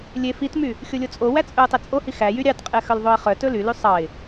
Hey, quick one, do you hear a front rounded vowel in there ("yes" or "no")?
yes